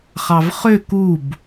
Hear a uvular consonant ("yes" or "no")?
yes